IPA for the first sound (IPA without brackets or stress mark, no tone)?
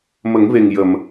m